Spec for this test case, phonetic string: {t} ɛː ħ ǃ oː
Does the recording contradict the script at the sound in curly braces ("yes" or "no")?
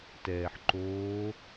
no